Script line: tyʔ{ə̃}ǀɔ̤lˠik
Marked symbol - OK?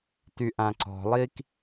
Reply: no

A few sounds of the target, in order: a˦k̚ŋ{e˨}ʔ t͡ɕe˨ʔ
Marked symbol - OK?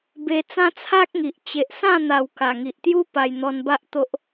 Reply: no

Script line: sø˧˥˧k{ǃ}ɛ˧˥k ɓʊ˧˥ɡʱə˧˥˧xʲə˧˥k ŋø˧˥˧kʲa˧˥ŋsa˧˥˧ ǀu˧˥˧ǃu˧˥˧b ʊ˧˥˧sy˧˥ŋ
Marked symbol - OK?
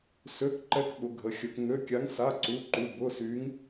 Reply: yes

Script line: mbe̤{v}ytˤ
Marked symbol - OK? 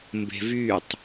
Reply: yes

